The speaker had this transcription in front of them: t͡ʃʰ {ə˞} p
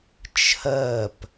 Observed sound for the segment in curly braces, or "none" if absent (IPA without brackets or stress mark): ɜ